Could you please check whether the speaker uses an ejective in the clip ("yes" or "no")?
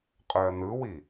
yes